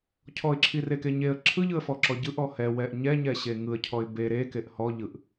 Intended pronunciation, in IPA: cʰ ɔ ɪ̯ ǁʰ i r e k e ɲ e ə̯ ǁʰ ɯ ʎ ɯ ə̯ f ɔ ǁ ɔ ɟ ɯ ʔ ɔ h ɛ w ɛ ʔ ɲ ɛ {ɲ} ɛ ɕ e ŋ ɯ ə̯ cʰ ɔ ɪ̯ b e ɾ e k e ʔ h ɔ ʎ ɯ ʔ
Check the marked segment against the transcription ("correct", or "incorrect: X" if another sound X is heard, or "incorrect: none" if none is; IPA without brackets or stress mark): correct